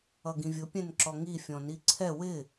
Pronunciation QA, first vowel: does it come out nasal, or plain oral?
oral